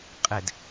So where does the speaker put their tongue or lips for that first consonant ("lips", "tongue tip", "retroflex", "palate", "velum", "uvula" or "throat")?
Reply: uvula